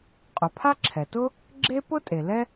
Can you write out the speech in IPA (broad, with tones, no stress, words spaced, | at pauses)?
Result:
qʼʊ˩pʰa˥ ǁʰɛ˩tʊ˥ | ɡ͡ǁe˥ pʊ˥tʼe˩ lɛ˥